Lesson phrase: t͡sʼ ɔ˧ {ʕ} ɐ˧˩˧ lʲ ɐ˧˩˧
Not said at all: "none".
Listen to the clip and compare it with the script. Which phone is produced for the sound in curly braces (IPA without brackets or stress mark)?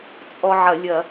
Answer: ʕ